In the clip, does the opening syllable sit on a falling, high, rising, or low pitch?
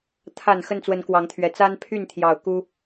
low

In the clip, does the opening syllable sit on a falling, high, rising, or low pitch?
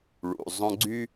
low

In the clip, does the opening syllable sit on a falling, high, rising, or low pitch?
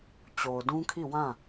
low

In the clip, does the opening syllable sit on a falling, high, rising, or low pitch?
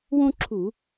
high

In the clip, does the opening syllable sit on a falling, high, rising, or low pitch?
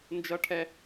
high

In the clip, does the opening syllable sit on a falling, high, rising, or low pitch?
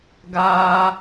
high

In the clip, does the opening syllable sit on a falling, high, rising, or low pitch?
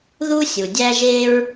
high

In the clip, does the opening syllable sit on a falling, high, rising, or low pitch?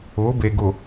rising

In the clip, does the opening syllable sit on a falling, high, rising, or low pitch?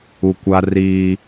low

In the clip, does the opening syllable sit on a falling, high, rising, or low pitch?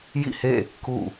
falling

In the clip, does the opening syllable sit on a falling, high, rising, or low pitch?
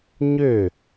falling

